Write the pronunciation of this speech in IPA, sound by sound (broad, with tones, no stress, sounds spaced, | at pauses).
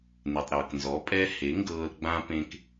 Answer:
n e˨ tˤ ɾ ɤː˨ k n z ɔ˨˦ pʼ ɛ˦ h e˨˦ ŋ ɡ ɤː˧ l ɡ͡b ã˦ p ẽ˦ k